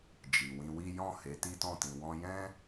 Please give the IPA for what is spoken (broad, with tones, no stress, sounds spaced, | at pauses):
d͡ʒ i˨ w ĩ˧ w i˦ j ɔ̃˦˨ h e˨˦ t i˦ t ɔ̃˦˨ t ĩ˧ w ɔ̃˦ j ɛ̃˦